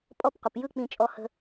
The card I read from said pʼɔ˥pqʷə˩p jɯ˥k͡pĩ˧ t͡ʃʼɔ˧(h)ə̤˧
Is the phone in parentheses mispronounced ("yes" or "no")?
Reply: no